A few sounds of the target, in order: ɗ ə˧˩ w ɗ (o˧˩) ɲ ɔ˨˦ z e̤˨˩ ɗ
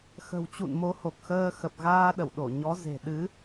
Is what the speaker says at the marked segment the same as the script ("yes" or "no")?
yes